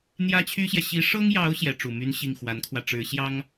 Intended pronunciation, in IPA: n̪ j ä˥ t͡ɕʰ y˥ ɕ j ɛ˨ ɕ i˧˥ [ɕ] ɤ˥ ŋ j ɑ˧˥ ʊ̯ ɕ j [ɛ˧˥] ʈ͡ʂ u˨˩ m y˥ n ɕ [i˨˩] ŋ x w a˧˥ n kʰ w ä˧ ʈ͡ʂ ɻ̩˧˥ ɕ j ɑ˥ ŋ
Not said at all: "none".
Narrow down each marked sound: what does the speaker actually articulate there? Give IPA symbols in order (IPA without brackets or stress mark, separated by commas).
ʂ, ɛ˧˥, i˥˩